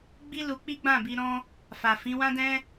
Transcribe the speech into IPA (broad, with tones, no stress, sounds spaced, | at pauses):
ɡ͡b i˦ l u˧ k͡p i˦ ɡ͡b ã˦˨ b i˧ ɾ ɔ̃˧ | f a˨ f ĩ˨˦ w ã˦ d ɛ̃˦